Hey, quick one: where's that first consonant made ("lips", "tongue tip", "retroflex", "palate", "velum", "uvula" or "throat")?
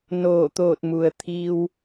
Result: tongue tip